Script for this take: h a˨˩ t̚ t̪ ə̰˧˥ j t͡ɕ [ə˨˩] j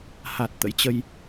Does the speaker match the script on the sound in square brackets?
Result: no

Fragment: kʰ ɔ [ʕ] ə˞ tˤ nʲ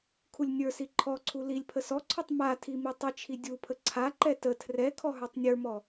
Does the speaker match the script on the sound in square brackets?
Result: no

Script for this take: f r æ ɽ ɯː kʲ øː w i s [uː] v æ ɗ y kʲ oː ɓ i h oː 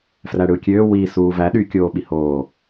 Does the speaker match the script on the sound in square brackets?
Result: yes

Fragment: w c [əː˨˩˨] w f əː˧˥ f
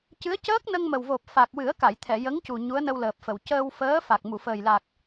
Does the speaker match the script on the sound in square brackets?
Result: no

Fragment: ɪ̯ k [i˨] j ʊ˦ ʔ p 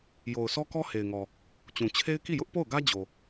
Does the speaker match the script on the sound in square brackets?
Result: no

